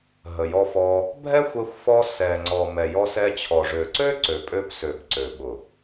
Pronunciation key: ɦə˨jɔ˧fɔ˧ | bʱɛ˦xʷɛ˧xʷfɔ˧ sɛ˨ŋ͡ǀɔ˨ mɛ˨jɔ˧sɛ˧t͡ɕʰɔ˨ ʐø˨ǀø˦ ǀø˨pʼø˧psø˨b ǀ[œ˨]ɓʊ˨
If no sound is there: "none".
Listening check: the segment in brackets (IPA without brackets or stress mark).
ø˨